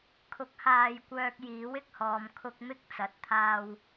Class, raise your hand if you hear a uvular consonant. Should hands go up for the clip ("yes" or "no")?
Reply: no